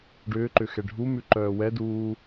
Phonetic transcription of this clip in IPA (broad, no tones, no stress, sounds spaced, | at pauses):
ɖ ʏː ǃ ʏ x ɛ ɖʱ u m ʉ ǃ œː w ɛ d uː